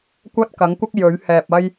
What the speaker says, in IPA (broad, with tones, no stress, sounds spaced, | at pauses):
kʷ ɐ˥ t̚ k ɐ˨˥ ŋ kʷ ɐ˥ k̚ j ɵ˨˥ ɥ h ɛː˨ p̚ ɐ˥ j